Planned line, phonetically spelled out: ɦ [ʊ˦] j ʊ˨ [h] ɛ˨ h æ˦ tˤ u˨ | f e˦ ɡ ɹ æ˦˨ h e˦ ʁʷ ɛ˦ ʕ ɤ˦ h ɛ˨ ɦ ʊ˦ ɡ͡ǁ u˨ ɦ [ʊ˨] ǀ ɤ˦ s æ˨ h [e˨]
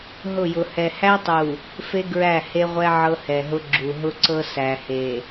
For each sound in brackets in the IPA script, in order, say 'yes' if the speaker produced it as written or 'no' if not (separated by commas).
no, yes, no, yes